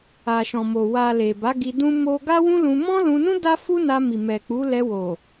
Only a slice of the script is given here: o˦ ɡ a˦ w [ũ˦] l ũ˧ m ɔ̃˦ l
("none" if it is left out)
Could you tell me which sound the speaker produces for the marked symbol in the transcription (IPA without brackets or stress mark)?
ũ˦